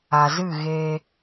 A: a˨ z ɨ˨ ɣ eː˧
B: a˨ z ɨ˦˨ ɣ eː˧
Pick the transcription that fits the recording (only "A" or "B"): B